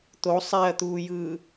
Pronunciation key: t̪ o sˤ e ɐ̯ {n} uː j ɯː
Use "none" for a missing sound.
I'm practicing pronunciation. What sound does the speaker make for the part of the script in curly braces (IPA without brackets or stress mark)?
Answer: t̪